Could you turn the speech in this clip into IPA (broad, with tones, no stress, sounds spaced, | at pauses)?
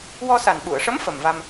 w ɔ˧ s a˨˩ n ɓ u˨˩˨ ə̯ ʂ ə˧˥ m f ə˨˩ m v a˧ m